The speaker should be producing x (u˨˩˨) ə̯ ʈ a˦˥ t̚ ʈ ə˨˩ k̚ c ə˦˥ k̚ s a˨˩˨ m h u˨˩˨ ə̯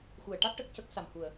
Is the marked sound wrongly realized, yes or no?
no